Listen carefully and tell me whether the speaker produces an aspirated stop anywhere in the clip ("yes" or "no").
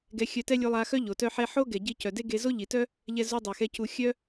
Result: no